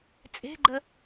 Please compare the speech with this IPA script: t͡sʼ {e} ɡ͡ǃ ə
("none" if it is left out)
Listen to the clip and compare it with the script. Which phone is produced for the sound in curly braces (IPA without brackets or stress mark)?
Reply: e̤